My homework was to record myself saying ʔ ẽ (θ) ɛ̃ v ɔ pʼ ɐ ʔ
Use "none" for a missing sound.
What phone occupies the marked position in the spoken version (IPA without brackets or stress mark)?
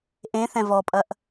θ